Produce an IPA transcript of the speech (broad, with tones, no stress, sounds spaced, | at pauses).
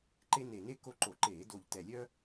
ǃ e˦ n e˨˩ n e˦ k o˦ ǃ o˧˩˧ ǃ eː˧˩˧ d o˨˩ ʎ t ɛ˨˩ lʲ œ˦